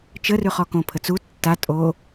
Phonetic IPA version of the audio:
t͡ʃ ə r ʉ χ ɔ k õ pʰ ə t͡s u tː a tʼ o

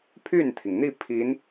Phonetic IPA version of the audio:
pʰ y˥˩ n t̪ʰ i˩ ŋ n̪ i˥˩ pʰ i˧˥ n

